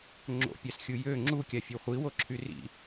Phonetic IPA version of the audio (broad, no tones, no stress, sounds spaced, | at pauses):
ŋ͡ǁ o̰ pʲ a s xʲ u j ø ŋ͡ǁ u kʲ a fʲ o χʷ i w o ǁʰ y r ḭ